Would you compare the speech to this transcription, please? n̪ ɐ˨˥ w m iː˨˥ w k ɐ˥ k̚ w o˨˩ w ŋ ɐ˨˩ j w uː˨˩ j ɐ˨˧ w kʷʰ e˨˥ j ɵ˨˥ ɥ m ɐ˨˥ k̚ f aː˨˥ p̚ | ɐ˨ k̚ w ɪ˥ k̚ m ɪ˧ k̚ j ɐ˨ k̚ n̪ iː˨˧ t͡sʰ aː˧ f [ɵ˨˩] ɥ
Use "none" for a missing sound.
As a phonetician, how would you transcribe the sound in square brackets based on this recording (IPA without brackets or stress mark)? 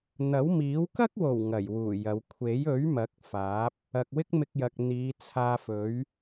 ɵ˨˥